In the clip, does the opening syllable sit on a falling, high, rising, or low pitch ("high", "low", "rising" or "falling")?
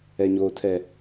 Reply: low